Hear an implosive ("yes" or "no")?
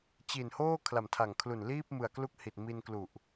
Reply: no